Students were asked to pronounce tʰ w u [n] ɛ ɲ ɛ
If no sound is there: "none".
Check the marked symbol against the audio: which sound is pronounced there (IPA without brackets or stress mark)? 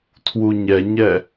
ɲ